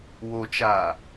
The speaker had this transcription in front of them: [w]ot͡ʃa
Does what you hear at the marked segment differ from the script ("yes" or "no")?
no